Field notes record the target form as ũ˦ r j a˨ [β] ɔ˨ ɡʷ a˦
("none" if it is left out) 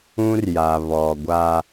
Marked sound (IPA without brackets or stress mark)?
β